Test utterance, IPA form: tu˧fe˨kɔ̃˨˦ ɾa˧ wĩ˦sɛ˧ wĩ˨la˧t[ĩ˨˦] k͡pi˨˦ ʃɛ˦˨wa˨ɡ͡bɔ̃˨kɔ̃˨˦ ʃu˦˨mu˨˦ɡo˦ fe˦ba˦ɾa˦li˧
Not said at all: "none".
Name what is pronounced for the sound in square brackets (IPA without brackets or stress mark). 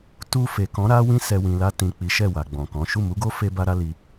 ĩ˨